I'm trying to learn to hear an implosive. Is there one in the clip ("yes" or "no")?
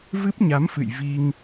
no